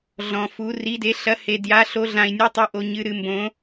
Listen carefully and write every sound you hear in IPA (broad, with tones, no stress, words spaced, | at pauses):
ɮɔ̃˧fu˧˥ ri˧˥de˧˥ ɬɐ˧˥he˧ dja˧˥ɬo˧˥ɮã˧i̯nʲɨ˧˥ tˤɨ˧˥ʔo˧ ɲɨ˧ ɾɨ˧˥ mbõ˧˥